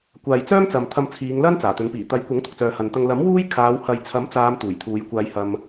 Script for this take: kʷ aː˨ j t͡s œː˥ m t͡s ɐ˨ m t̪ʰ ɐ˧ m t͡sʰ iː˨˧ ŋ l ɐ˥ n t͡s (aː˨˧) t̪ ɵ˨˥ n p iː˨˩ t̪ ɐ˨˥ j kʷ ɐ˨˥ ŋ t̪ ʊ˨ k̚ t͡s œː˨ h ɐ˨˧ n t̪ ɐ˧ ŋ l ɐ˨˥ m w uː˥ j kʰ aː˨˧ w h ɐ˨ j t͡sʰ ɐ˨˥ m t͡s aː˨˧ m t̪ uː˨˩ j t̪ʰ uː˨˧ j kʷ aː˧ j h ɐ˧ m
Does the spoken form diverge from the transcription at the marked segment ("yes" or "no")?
yes